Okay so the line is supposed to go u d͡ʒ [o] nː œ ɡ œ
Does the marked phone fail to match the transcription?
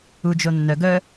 no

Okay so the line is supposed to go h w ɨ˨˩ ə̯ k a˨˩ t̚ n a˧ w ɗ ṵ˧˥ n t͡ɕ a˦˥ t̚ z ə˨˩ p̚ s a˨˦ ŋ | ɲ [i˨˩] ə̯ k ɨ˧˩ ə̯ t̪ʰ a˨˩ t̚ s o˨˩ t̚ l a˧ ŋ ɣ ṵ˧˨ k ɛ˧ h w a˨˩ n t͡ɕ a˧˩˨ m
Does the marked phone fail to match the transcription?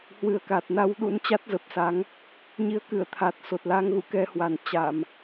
yes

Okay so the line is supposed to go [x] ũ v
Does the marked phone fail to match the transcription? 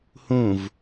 yes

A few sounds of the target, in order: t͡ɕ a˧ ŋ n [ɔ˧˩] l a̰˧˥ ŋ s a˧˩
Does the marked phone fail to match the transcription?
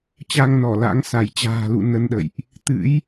no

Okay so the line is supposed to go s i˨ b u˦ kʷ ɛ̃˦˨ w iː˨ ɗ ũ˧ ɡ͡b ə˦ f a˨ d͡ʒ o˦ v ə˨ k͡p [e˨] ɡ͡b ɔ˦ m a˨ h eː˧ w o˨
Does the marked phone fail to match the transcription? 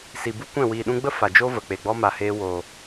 no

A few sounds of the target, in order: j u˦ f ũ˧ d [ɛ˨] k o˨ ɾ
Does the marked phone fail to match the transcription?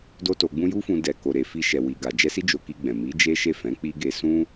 no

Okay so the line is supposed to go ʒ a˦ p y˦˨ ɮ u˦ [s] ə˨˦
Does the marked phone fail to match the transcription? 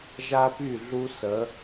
no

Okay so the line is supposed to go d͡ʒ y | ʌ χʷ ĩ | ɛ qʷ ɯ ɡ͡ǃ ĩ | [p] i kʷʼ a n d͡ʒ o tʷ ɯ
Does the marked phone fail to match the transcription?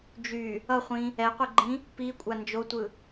no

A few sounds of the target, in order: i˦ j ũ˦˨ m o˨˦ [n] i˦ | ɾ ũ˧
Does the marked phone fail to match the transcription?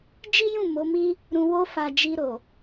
yes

